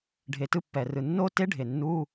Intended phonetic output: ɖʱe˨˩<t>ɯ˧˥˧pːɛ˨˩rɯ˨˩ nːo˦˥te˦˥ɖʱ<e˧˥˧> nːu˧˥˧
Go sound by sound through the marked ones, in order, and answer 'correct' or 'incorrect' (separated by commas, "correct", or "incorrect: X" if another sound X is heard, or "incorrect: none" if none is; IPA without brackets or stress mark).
correct, incorrect: e˨˩